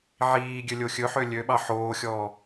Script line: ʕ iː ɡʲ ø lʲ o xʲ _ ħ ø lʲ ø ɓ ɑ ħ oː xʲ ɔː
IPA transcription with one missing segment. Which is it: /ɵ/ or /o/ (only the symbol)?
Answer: ɵ